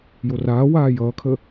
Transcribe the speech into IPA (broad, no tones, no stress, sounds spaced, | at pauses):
j o r aː w aː j ʌː kʰ ə